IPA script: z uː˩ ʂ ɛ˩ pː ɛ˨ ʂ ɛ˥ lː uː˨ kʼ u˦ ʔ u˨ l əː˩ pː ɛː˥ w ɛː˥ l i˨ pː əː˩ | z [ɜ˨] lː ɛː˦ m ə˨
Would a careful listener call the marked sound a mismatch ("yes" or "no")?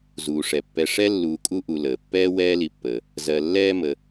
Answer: no